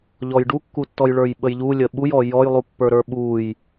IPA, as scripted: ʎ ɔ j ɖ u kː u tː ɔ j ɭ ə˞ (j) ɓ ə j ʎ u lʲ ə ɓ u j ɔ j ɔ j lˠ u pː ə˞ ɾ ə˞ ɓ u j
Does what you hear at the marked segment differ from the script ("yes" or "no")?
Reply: no